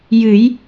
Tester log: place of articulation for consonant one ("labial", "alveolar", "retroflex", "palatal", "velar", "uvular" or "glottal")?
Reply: palatal